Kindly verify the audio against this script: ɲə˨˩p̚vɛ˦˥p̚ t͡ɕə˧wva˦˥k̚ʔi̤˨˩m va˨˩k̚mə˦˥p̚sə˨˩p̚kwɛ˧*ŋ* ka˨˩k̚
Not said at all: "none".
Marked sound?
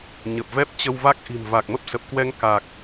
ŋ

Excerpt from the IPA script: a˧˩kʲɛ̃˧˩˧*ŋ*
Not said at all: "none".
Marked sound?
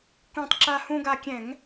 ŋ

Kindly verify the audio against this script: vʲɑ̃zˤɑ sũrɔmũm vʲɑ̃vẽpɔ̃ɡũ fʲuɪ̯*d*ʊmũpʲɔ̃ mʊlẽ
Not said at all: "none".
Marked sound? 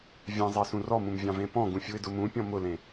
d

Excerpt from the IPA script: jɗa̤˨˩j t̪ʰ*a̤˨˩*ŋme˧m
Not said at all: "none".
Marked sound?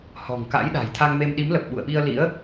a˧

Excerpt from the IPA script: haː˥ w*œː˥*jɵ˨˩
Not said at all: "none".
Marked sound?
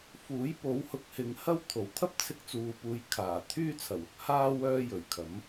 œː˥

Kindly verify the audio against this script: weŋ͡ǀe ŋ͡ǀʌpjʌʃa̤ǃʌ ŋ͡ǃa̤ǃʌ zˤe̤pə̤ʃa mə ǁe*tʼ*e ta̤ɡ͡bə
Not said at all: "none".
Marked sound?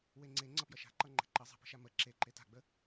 ǃ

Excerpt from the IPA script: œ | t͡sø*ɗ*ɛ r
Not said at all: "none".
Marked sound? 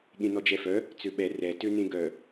ɓ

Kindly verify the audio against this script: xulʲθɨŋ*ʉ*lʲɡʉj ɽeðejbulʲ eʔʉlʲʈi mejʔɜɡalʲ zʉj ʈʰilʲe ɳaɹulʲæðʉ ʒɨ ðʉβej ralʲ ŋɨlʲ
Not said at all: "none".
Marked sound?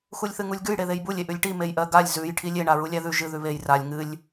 u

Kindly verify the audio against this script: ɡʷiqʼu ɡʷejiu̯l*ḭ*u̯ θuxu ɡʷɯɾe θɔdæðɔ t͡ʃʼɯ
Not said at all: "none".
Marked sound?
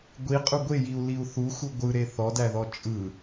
i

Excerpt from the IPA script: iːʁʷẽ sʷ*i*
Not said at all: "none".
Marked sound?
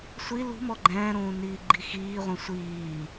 iː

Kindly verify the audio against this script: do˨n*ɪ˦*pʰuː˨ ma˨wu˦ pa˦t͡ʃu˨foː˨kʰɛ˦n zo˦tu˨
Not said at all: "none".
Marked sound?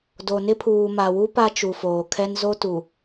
ɪ˦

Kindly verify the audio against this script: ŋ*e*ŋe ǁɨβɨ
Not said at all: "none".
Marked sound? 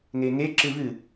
e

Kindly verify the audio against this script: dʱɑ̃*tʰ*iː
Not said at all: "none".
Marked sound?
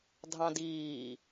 d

